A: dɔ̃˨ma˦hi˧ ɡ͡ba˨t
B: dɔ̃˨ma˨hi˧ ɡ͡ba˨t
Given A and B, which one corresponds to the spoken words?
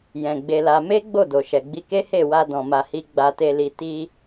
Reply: B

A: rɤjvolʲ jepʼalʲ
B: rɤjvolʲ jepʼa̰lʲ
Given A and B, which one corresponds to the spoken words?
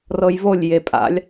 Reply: B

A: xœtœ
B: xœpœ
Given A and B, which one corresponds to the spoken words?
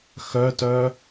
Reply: A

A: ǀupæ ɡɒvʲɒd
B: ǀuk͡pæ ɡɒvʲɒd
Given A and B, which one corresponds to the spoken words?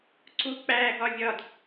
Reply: B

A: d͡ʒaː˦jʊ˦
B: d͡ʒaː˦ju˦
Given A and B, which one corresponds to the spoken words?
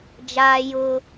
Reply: A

